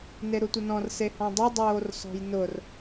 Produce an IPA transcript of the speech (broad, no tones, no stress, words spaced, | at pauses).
neɾutʷɪnɔ̃r sehɔ̃dˤi dˤoːrsɔ̤jnʊr